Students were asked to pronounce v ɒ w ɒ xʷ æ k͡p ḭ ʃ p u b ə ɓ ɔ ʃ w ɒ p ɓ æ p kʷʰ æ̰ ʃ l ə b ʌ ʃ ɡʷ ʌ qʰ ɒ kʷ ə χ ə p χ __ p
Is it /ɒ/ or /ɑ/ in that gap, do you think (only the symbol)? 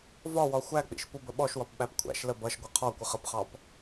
ɑ